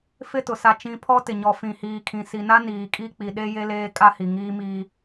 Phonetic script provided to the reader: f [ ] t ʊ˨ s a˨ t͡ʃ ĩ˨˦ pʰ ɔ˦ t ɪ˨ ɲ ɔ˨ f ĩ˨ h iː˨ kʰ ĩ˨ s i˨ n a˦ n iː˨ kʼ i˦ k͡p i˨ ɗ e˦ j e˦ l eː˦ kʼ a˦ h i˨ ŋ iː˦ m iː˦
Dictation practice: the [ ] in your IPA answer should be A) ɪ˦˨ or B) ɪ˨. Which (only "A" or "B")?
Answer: A